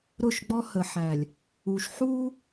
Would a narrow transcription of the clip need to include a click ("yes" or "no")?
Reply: no